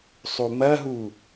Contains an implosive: no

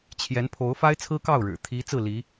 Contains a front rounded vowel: no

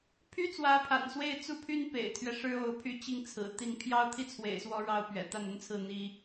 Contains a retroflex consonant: yes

